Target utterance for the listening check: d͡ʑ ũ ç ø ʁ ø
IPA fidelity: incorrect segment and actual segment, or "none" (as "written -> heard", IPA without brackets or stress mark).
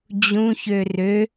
ʁ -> r